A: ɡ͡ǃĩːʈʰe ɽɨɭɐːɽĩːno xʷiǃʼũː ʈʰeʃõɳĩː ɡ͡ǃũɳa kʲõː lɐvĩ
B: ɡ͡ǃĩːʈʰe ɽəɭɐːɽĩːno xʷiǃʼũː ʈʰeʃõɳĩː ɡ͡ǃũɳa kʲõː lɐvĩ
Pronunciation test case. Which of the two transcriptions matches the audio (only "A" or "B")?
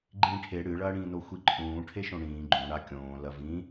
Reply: A